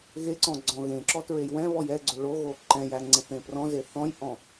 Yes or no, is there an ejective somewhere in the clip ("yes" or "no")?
no